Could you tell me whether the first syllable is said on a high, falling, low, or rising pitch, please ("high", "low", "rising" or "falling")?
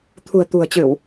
low